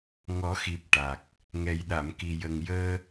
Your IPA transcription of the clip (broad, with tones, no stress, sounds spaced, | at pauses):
ŋ ɔ˨˩˦ x i˨˩ p̚ ʈ a˨˩ k̚ | ŋ ɛ˨˩ j ɗ a˨˩˨ m k i˨˩ j ə˨˩ ŋ j əː˧